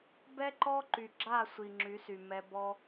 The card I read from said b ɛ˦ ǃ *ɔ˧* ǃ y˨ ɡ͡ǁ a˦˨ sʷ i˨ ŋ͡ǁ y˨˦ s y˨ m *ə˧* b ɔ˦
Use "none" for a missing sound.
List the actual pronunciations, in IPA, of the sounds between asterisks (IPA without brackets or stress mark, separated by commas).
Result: ɔ˦, ɛ˧